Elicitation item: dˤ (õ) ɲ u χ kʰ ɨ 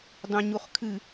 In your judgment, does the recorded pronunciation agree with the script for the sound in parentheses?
yes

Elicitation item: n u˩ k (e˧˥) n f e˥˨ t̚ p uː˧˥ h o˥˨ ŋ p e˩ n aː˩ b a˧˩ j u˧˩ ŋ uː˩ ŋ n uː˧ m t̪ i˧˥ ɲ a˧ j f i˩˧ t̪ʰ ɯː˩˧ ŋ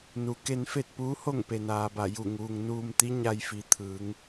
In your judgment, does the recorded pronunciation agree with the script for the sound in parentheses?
no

